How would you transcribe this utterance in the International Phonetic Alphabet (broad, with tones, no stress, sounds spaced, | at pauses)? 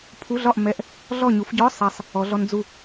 pʰ u˧˥˧ ɮ ɒ˥˨ ʔ m ɛ˧˥˧ ʔ | ɮ ɔ˥˨ ɲ u˨˦ f ɟ ɔ˧˥˧ sˤ ɛ˨ sˤ | ɔ˨˦ ɮ ɔ˦˥ n d͡z u˥˨